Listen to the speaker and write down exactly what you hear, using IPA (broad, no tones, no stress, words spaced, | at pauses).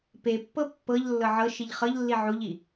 pepːɤ pːɤʎ lːɤʕɤʃiʎ χɤʎlːi ʕuʎi